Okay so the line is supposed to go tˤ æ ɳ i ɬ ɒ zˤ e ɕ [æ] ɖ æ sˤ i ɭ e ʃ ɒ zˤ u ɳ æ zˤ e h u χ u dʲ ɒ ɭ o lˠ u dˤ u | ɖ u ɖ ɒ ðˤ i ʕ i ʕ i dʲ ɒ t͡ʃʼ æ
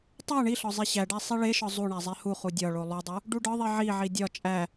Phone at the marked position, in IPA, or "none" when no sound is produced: æ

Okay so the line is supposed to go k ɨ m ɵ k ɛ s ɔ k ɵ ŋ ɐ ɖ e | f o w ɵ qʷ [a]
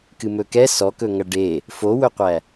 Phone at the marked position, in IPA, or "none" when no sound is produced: æ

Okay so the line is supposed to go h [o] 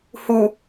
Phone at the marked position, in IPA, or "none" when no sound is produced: u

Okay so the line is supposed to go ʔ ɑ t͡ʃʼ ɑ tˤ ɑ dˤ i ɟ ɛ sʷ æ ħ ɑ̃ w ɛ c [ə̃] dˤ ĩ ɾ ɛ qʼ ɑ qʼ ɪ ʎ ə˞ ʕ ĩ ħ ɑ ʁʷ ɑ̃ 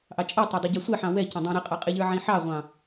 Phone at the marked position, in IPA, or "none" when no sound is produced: ə̃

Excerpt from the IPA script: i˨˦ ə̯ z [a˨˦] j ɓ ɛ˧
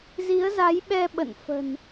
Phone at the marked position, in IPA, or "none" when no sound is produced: a˨˦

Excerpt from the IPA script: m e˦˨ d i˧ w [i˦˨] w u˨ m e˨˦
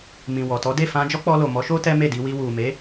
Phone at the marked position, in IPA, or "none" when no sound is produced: i˧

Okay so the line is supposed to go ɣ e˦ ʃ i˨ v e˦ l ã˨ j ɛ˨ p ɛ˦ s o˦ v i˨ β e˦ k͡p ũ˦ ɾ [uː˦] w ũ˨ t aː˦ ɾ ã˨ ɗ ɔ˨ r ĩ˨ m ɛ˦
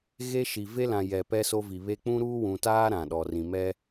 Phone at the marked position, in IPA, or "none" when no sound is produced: uː˦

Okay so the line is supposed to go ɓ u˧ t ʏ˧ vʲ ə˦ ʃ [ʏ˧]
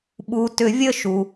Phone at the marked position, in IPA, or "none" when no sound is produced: u˧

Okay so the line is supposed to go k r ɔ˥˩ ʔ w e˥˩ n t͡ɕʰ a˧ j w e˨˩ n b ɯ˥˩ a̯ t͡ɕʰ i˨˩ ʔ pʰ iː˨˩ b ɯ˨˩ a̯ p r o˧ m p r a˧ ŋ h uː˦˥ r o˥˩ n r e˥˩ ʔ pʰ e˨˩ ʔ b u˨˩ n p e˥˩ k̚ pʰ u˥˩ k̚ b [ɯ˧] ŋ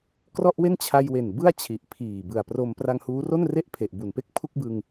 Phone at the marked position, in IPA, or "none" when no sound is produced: ɯ˧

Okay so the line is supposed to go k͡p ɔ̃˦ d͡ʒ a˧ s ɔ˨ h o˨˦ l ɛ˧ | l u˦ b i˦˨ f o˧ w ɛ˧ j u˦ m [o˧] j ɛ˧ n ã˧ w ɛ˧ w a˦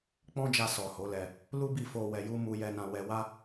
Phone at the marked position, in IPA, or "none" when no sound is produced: u˧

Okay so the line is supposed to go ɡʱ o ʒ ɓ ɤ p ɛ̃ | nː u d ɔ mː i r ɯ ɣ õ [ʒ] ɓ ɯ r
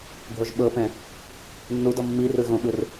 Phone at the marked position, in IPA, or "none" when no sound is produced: none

